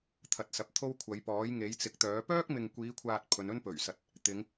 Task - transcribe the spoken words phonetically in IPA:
t̪ʰ ɐ˨ t̚ s ɐ˨ p̚ t̪ʰ o˥ w kʷʰ ɐ˨˧ j p ɔː˨˥ j ŋ e˨˥ j t͡s ɪ˨ k̚ t̪ œː˨˥ p œː˥ k̚ m ɪ˨ ŋ kʷ iː˨˧ kʷʰ aː˨ t̚ pʰ ɵ˨˧ n ɵ˥ n p ɵ˨˩ ɥ s ɐ˨ t̚ | t̪ ɪ˨˧ ŋ

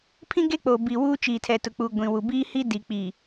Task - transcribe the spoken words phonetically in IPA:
pʰ ĩ˦ ɡ e˦ k͡p o˨ b iː˨ w uː˦ t͡ʃ iː˨ tʰ ɛ˨ t ʊ˨ k͡p u˨ ɡʷ ĩ˨ w u˨ b iː˦ h i˦ d i˨ k͡p iː˨

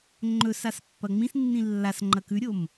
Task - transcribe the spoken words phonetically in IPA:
ŋ͡ǃ ɵ s a s pː ɐ ŋ͡m ĩ s nː ĩ lː a s ŋ͡ǃ ɐ k ʉ ɾʲ o m

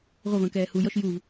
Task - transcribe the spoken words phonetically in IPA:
ʁʷ ʌ v ə̃ː k ɛː h u j ɔ ʃ j u v

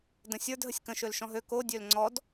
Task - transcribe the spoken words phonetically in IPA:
d ə̃ sʲ ə˞ d ɦ ə sʲ k ə̃ ʃ ø l ʃ ɔ̃ ɦ ø k o dʲ ø l ŋ͡ǀ ɔ d

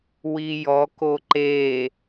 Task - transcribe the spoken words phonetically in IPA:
w i j ɔ k o ǃ e

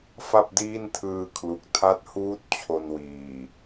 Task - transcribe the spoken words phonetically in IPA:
f a˥˩ p̚ d iː˥˩ n tʰ ɯː˧ kʰ l u˨˩ k̚ tʰ a˦˥ t̚ h uː˦˥ t̚ t͡ɕʰ o˧ n w iː˨˩

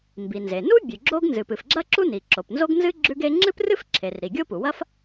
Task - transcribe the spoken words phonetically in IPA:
m b i˩ n z e˩ n u˥ bʲ ʉ˩ ɡ͡ǁ o˥ ɡ n z ɨ˩ p ɨ˩ f ɡ͡ǁ ɐ˥ ǁ u˥ n i˩ ǁ o˩ p n z o˥ ɡ n z ɨ˥ ɡ͡ǁ ʉ˥ ɡ e˥ ŋ͡ǁ ɨ˥ p r ɨ˥ f ǁʰ e˩ r ɾ i˩ ɡʲ o˥ p u˩ w ɐ˥ f

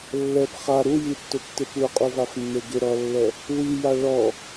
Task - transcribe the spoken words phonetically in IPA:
lː ɛ p χ a ɾ u j i tː ʊ tː ɪ p u qʼ u v a f nː e ɡ ɪ ɾ ɔ lː ɛ | w i j a ɭ ɔ

